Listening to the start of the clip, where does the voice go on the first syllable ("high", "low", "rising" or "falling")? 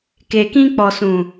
low